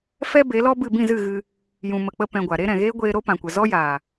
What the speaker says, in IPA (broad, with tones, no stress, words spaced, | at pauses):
fɛ˦be˨˦lɔ˦bɨ˦˨ bĩ˦˨zɨ˦˨ɣɨ˧ | jũ˨mə˨ k͡pə˦pɛ̃˧ɡʷa˨ ɾe˦ɾɛ̃˨ ɣeː˦ɡʷeː˧ ɾo˦pã˨kʷə˨ zɔ˦jaː˨